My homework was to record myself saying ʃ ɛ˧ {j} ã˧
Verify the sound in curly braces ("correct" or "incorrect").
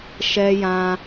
correct